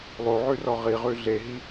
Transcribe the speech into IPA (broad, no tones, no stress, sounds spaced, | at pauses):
lˠ o ʕ ʉ r ɔ ʁ i ʁ ʉ ɮ e ɦ i